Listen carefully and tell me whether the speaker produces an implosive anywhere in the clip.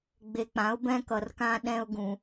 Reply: yes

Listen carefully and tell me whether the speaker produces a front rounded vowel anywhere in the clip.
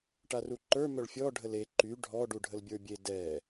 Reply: yes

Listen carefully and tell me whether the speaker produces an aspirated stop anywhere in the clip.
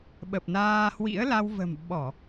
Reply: no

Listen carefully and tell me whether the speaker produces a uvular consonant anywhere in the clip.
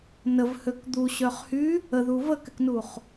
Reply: yes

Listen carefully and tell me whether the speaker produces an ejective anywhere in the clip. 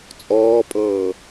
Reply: yes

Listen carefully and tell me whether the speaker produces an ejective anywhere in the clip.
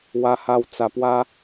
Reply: no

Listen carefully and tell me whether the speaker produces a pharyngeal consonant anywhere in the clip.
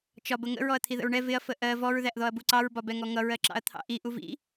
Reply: no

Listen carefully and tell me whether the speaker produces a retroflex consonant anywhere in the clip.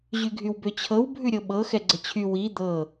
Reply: no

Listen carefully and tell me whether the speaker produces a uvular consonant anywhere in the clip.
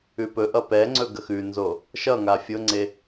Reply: no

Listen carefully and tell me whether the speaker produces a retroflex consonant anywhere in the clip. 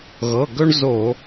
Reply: yes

